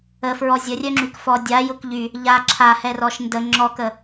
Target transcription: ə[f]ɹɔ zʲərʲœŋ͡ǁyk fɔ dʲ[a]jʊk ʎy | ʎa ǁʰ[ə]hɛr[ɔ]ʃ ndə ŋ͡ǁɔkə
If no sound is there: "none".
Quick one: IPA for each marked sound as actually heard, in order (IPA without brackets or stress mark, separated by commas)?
f, a, a, ɔ